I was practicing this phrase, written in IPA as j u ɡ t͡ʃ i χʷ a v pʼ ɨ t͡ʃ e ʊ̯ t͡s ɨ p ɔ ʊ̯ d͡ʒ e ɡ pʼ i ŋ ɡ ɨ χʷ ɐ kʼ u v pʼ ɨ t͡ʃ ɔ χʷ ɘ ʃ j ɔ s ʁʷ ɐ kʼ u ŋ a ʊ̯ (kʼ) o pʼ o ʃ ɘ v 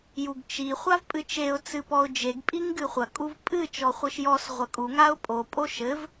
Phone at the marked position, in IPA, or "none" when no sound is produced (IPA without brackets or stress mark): pʼ